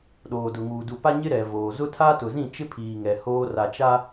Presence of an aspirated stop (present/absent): present